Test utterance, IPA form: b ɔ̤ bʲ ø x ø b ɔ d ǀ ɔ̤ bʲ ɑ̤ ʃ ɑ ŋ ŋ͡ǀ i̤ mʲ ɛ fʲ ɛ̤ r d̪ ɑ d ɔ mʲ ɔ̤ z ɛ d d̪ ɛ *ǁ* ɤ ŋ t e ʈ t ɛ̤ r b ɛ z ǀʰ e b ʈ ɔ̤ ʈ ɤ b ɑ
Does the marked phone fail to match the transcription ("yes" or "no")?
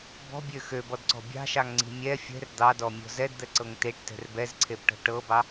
yes